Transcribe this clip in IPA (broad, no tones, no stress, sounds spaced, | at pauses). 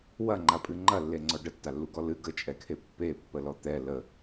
w ɐ ŋ͡ǃ a pʼ ɨ ŋ͡ǃ ɐ lː e ŋ͡ǀ ɔ ɖ ə tː a lː u ɡ ɔ l ɨ ɡ ə t͡ʃʼ ɛ kʰ e pː e pː ə l ɔ t̪ ɛ l ə